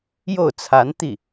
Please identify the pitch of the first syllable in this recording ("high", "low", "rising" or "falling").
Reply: falling